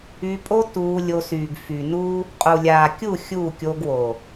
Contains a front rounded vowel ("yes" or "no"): yes